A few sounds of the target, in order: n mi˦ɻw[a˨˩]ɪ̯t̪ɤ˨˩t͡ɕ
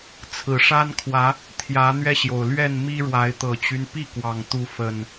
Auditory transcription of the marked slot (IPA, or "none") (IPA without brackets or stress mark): a˨˦